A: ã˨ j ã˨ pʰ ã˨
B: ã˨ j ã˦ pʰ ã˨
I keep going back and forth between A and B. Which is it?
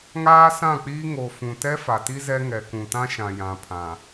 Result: A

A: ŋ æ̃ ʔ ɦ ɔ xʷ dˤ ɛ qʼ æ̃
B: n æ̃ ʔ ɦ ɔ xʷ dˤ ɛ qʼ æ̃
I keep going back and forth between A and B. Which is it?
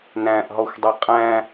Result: B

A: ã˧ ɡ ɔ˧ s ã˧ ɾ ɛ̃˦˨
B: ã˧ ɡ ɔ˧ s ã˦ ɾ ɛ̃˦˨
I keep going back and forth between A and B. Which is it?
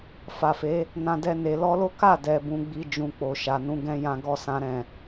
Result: B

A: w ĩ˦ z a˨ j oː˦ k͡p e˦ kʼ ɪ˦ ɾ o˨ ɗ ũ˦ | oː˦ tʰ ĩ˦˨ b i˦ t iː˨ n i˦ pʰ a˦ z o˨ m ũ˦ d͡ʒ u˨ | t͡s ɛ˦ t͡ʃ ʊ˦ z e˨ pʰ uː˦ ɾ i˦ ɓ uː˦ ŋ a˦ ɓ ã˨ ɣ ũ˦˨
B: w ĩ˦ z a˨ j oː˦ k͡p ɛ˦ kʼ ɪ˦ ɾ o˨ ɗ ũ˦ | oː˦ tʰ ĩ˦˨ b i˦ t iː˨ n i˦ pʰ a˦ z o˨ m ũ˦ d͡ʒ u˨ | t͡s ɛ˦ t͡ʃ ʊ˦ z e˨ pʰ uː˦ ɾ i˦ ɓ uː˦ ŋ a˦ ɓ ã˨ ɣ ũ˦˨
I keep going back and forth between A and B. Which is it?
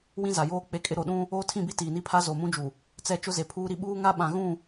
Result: A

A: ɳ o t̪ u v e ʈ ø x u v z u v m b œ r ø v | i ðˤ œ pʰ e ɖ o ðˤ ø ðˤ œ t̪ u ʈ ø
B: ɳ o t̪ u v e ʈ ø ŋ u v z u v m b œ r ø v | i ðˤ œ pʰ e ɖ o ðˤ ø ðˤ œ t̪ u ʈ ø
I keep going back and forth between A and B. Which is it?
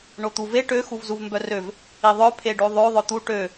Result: A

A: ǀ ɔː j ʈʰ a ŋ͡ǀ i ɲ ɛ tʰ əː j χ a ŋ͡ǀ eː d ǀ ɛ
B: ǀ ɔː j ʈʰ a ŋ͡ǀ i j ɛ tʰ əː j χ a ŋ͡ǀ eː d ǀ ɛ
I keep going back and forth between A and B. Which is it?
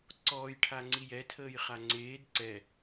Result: B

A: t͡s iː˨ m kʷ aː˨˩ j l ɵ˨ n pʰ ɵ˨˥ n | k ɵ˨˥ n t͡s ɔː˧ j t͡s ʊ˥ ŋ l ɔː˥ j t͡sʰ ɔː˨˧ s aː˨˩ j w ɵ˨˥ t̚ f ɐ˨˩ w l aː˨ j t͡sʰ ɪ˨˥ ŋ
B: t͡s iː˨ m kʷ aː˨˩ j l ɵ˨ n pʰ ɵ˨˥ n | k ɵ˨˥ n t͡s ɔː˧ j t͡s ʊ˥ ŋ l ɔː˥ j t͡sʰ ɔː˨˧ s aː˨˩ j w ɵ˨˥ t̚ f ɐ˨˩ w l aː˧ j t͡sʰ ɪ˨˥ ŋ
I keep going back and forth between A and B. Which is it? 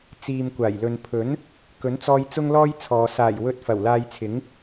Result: B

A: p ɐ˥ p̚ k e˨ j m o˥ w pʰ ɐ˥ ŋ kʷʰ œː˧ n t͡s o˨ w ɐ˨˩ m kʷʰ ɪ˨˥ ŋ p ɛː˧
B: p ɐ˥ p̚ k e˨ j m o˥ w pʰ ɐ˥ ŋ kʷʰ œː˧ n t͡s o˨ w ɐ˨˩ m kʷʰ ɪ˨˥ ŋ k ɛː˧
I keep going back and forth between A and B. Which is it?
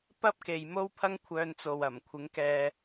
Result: B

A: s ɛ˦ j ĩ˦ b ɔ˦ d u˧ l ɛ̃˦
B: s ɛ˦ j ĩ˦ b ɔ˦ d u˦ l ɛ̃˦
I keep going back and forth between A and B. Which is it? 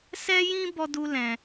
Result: B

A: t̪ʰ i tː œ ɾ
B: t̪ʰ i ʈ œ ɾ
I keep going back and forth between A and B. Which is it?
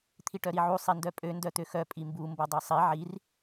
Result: B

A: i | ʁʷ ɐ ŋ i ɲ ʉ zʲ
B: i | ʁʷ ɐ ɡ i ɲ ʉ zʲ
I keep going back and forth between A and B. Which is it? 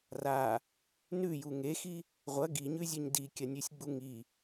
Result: B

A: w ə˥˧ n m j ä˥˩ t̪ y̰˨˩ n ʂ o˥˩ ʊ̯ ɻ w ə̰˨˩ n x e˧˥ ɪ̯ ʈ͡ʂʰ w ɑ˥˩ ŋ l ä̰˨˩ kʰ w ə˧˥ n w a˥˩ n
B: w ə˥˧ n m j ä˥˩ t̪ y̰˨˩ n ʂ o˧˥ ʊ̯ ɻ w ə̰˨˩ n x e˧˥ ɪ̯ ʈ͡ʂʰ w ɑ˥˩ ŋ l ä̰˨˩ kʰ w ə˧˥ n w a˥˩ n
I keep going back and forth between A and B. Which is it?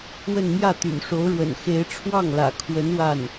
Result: B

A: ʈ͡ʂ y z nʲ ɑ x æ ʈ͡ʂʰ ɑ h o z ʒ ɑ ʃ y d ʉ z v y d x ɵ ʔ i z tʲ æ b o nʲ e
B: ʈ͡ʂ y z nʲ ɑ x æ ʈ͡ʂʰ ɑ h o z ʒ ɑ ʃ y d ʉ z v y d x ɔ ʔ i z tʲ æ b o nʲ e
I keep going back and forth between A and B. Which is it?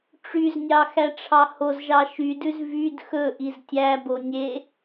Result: A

